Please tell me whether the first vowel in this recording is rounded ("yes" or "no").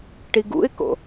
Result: no